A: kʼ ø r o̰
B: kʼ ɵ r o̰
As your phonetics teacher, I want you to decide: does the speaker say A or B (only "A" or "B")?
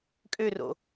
A